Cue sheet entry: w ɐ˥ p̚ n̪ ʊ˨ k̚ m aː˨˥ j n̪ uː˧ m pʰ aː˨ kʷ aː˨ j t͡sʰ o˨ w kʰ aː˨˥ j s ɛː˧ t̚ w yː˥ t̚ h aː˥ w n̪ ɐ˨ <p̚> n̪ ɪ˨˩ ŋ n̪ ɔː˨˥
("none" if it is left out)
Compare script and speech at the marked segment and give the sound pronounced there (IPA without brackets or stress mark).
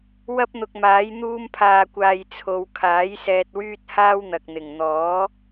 k̚